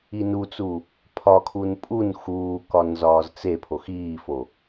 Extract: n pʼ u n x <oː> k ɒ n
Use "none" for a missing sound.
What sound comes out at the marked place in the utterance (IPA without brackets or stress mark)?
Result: uː